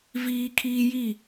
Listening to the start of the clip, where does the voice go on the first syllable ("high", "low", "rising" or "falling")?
high